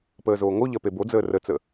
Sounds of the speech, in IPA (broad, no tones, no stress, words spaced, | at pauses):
pəːzoːŋoʎɜ pebod͡zəː rət͡sə